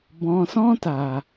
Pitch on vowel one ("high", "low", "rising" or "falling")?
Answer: low